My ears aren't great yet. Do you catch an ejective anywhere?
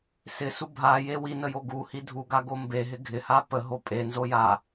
yes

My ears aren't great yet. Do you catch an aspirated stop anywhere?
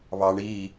no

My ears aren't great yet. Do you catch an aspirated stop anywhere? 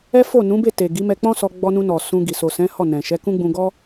no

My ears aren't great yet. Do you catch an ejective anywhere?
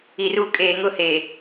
yes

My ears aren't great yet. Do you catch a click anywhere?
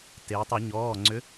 yes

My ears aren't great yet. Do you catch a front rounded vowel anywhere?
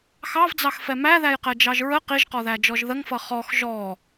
no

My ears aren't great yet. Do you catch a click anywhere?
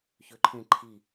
yes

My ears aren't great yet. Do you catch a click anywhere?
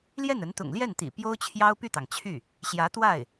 no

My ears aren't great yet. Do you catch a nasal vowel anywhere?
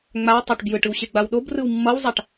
no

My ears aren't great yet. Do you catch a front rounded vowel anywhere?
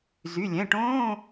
yes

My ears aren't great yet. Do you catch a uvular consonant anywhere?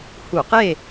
yes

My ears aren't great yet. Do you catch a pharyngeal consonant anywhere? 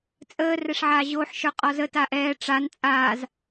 yes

